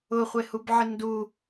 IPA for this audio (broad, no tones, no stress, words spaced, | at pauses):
ʊχʷehubʕɪ ndu